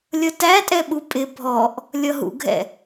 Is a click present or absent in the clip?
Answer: absent